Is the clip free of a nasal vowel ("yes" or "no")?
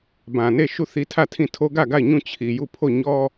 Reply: no